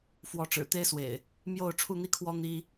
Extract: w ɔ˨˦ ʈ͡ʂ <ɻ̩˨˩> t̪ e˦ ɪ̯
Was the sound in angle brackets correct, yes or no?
yes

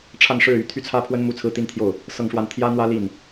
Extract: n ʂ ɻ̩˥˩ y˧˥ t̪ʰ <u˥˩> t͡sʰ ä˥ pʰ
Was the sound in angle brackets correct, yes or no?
no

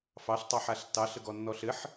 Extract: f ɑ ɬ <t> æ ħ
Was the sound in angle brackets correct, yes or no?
no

